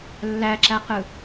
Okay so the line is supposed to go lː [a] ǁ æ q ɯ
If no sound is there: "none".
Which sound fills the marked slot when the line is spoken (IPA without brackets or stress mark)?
æ